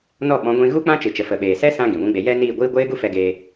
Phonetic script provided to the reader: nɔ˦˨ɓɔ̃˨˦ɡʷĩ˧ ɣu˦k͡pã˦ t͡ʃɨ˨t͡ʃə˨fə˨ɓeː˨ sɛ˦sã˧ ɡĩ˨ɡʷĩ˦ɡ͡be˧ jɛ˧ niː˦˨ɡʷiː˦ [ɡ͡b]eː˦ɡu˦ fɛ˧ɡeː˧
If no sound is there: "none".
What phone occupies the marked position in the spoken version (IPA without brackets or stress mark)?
ɡʷ